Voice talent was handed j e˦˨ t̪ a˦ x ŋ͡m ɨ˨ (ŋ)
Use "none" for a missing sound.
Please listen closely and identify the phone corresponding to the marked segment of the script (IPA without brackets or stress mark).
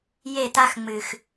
x